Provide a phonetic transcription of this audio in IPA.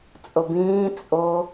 t͡sʼobĩː t͡sʼo

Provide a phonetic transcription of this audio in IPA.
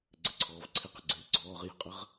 ɡ͡ǀɘǀʰɔːvǀʰɪ qə̤ɡ͡ǀɪːɡ͡ǀɔːʁ jə̤qʼəʁ

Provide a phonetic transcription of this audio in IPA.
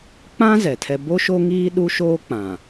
k͡pã˦ zɛ˨tʰɛ˦ bo˦ʃo˦ŋiː˦ ɗu˦ʃoː˦k͡pã˨

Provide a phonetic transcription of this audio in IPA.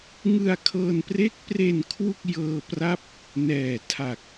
ŋɯ˧a̯kʰɤː˧npre˦˥k̚pre˧n kʰwu˥˩k̚ jɤː˧pra˦˥p̚ | nɛː˨˩tʰa˨˩k̚

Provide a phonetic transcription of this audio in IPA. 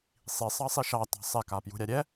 sˤisˤɑsˤi ʃɑtɑ̤ sˤɛkapjṳɾʲa ɾʲɛ

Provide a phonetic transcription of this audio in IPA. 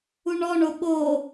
uɳɔɳo ɓo

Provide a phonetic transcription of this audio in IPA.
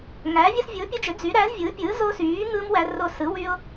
ŋæː˨˥vʲɯ˦s vʲɯ˨˥ʊ̯pʲu˦d͡ʒø˨˥ d͡zy˨˥ɾæ˨˥zvʲɯː˨˥ pʲɯː˨˥zo˦syː˨˥ŋɯː˦m wæ˦ro˦ sɯ˨˥wy˦ʊ̯

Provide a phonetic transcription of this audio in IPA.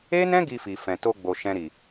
e˦nɛ̃˦ ɡi˧fi˨ fɛ̃˨to˧ɡ͡bo˨ ʃɛ̃˨ɾi˨

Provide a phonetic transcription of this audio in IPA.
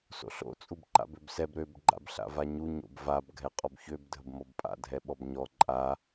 so̰ɬo̰ t͡sʼubǃa̰bøbsɛb ɾøb ɡ͡ǃa̰bɬa̰vaɲu ɲo̰bvab ɡʱɛqʼɔbçøb dʱəbmɔbpʼa̰ dʱɛɓɔbɲɔ ǃʼa

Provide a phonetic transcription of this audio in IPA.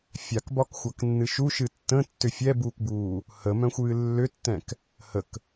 fʲakbɒkxʷaknːɨ ʃuʃɨ tːə̃tːʏ fʲɛbuːkbuː | həmœ̃xʷɨː lːʏtːɛ̃k | hək

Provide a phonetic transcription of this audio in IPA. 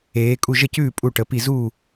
eː˩˧kʼu˥˩ ʒə˥˩cʉː˥˩pʼu˧˩ ʈə˩˧pi˧˩ zuː˥˩

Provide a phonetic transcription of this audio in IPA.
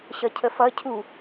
ɕʌcʰəfʌ cʰu

